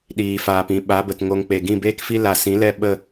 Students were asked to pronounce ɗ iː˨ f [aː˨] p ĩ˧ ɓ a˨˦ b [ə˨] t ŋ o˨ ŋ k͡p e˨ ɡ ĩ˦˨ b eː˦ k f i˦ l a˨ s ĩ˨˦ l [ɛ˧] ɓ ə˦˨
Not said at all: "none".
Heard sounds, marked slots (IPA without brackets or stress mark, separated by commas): aː˨, ə˨, ɛ˦˨